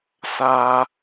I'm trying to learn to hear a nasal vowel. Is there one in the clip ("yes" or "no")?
no